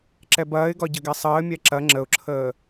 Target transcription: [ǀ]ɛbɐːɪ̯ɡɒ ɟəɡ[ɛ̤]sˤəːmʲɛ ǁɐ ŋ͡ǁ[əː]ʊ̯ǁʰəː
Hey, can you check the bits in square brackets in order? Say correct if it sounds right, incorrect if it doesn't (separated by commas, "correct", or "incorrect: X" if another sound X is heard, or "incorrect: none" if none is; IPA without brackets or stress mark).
incorrect: ǁ, incorrect: ɛ, incorrect: ə